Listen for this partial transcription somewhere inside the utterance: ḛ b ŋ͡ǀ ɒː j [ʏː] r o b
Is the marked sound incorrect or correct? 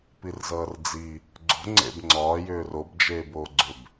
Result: correct